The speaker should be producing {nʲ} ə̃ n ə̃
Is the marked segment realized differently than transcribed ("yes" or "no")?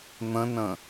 yes